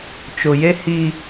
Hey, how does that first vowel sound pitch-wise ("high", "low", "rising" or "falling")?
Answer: low